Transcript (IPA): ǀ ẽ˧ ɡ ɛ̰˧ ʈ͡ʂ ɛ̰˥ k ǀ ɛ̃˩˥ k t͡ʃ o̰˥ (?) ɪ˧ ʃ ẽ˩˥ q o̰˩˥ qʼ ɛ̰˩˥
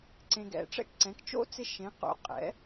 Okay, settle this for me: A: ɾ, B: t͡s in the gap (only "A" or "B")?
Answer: B